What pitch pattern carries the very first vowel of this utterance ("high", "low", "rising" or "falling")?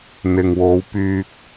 low